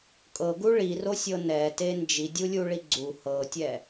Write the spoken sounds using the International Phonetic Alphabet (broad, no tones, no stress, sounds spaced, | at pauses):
kʼ ɤ ɡ u ɭ i r o sʲ ɤ n ɛ t e n d͡ʒ i dʲ u lʲ u ɭ i ɡ͡ǀ u h ɤ tʲ ɛ